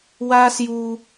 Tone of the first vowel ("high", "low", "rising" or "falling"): high